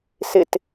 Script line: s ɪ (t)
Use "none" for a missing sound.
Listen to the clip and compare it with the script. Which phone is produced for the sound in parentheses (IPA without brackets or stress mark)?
t